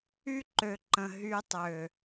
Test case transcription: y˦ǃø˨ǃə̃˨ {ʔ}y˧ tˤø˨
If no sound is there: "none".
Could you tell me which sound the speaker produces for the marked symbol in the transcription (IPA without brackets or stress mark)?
ɦ